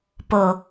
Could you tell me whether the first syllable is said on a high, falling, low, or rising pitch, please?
low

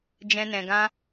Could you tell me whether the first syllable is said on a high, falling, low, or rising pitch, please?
high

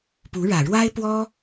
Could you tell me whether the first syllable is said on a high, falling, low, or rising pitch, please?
rising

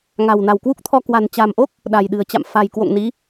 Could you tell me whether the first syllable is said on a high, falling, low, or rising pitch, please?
low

